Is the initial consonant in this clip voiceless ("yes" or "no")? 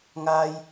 no